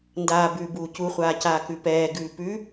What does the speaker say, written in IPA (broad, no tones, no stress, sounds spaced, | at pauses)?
n d aː b ʉː b uː c u χʷ aː c aː k ʉ p ɛː ɡ ʉː p ʉ